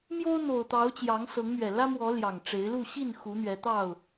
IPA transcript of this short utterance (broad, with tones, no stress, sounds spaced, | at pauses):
m j o˦ ʊ̯ n̪ o˨˩ ʊ̯ t̪ ɑ˨˦ ʊ̯ t͡ɕ j ɑ˨˦ ŋ s ɤ˨˦ ŋ m ɥ ɛ˨˩ l ä˦ m w ɔ˨˦ l j ɑ˨˩ ŋ ʈ͡ʂ e˨˦ ɪ̯ l u˥˨ ɕ i˥˨ n x u˨˦ n̪ ɥ ɛ˨˦ t̪ ɑ˥˨ ʊ̯